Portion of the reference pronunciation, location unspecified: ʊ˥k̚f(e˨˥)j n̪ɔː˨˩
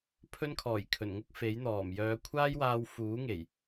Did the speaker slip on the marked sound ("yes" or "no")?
no